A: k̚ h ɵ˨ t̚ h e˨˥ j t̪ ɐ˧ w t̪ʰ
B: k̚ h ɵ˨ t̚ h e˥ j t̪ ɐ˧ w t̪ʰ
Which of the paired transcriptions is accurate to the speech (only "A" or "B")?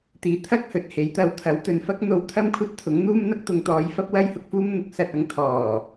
A